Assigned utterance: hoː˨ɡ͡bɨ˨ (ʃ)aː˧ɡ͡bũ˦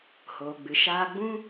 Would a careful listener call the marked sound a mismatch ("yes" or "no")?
no